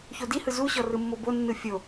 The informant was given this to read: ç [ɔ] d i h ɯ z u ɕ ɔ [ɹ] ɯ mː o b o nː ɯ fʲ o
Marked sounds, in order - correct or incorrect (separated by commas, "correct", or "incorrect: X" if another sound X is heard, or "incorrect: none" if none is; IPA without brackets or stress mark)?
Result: incorrect: o, incorrect: r